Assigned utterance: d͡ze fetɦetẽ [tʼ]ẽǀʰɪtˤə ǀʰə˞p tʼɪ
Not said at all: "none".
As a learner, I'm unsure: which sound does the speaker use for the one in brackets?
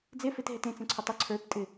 t͡s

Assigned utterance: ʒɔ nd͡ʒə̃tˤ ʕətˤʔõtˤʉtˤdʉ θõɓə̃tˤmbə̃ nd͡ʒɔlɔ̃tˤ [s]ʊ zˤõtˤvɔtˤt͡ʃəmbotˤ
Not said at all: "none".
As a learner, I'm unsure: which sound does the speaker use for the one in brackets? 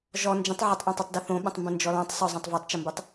sˤ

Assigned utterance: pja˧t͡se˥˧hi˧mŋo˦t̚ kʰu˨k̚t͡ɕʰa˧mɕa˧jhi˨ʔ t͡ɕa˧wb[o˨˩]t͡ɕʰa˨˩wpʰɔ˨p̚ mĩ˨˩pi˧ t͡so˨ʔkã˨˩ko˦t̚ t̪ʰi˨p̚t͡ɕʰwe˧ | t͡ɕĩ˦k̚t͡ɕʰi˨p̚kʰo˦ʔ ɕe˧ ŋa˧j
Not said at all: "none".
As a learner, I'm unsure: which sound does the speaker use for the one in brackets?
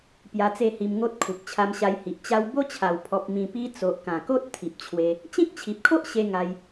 o˦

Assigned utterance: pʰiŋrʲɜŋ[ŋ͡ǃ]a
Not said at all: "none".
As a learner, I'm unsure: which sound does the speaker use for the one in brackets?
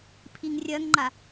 ŋ͡ǃ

